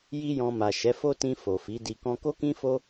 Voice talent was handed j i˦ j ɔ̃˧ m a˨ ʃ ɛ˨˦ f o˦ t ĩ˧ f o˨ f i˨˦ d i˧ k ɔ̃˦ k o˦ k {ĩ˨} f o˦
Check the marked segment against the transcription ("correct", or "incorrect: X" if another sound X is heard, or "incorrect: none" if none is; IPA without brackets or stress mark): incorrect: ĩ˦